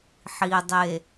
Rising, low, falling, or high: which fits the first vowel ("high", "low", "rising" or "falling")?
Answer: low